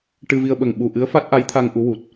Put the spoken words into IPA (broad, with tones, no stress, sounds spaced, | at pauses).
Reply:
ʈ ɨ˧ v i˧ ə̯ ɓ ə˨˩ ŋ ɓ u˨˩ ʔ ɨ˧˥ ə̯ f a˦˥ t̚ ʔ a˧˥ j t̪ʰ a˧ ŋ ʔ u˧˥ w u˨˩ t̚